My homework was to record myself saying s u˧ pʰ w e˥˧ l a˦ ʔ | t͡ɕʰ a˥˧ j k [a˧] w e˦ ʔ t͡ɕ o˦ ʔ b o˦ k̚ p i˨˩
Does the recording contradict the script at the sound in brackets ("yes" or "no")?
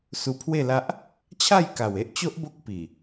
yes